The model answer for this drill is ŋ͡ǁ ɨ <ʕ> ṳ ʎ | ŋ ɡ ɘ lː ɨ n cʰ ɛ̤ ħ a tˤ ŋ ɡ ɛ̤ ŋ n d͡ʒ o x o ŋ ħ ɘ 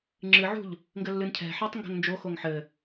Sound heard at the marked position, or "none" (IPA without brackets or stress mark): ʕ